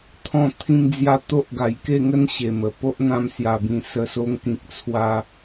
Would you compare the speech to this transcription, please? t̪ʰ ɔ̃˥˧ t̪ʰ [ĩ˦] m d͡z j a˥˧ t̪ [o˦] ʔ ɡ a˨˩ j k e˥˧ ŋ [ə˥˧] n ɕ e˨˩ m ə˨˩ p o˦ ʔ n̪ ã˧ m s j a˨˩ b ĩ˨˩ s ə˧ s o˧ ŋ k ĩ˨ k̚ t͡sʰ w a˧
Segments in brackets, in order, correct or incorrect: correct, correct, incorrect

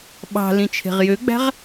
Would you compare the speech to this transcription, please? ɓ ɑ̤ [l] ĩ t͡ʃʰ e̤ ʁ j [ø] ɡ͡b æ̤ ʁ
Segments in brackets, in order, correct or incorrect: correct, correct

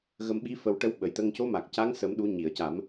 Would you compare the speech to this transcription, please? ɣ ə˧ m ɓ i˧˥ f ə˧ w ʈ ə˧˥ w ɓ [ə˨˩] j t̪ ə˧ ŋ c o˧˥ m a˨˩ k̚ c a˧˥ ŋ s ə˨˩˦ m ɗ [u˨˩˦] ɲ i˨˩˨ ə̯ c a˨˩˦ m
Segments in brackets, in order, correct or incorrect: correct, correct

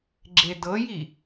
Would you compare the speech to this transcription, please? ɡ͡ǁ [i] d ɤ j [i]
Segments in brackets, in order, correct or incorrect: incorrect, correct

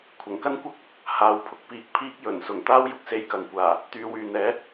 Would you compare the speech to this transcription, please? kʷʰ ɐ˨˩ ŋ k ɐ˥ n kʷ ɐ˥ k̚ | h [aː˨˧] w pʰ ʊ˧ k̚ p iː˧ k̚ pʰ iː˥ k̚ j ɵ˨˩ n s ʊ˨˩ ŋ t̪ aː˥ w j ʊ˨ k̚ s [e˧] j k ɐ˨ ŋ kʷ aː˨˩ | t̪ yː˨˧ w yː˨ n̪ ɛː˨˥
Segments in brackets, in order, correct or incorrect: correct, correct

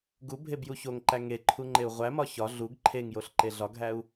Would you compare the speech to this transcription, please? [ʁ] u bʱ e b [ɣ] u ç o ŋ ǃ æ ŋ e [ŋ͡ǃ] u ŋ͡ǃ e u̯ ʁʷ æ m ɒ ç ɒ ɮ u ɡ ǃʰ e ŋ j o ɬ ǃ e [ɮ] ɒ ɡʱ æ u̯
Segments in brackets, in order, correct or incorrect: incorrect, incorrect, incorrect, correct

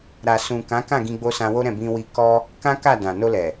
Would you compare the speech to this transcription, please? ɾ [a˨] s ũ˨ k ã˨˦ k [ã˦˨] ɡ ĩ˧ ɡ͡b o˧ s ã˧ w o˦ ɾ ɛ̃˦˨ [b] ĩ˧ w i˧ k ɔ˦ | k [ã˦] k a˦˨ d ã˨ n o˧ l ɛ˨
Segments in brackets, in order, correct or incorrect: correct, correct, correct, correct

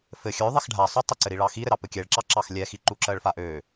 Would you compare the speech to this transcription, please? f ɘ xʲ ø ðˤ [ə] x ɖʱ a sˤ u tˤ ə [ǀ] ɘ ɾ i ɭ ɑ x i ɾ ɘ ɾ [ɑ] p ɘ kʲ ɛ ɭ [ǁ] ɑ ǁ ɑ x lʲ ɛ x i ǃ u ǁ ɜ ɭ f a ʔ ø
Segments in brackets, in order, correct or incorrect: incorrect, correct, correct, correct

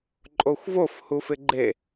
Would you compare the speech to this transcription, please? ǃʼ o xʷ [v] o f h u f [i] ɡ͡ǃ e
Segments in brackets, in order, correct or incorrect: correct, incorrect

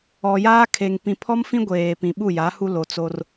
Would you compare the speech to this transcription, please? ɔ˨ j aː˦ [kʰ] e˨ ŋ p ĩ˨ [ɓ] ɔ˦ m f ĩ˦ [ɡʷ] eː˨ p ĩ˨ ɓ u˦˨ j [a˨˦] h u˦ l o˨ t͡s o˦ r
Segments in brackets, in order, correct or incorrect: correct, incorrect, correct, correct

